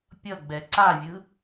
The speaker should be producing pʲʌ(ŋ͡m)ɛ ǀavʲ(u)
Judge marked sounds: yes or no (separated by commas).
no, no